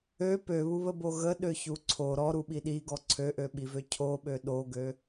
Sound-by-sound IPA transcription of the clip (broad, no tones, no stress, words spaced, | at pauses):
ø pøβuβəbo ɣəɗøçu ǀʰo ɾɔɾuɓi ɗiɡɔ ǀʰøʔøɓivø cʰoɓø ɗoɡø